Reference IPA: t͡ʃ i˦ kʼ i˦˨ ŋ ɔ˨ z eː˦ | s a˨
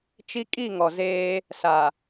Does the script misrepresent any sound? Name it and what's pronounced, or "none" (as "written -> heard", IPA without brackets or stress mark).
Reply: none